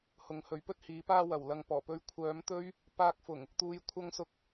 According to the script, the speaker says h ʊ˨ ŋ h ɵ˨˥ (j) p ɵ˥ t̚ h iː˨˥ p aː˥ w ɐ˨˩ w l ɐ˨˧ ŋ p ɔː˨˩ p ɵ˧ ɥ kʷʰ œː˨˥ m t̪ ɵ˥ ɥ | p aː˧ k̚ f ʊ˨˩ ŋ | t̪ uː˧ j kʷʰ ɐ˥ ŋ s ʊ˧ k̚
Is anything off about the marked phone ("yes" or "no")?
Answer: yes